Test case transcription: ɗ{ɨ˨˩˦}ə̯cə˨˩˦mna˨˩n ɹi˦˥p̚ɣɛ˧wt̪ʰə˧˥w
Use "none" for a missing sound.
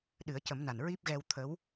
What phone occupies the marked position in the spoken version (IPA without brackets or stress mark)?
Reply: ɨ˨˩˦